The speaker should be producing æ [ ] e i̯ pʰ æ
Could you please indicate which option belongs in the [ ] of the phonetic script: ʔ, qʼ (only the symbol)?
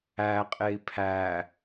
qʼ